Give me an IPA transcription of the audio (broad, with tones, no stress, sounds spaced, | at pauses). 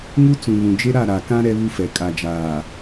ŋ u˦ t͡s ũ˨ β ũ˨ d͡ʒ e˦ ɾ a˦˨ ɾ a˨ k ã˦ ɾ ɛ˦ β u˦ f ɛ˨ kʼ a˨ d͡ʒ aː˨